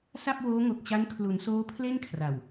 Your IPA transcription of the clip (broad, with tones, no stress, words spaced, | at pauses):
sa˥˩p̚woː˦˥ŋo˨˩k̚t͡ɕa˦˥n kʰlu˩˦nsoː˦˥ pʰle˥˩nkʰra˨˩w